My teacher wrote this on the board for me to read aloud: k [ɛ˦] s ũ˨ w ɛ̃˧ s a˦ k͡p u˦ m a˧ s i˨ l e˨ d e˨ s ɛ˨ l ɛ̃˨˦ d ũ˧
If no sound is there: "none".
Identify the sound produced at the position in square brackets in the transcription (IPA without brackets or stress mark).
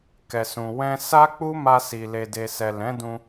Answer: ɛ˨